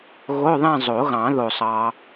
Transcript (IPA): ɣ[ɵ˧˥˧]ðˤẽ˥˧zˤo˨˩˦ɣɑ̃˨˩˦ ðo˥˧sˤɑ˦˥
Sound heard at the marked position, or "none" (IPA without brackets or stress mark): o˧˥˧